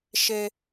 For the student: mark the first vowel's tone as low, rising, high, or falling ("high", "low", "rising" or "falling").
high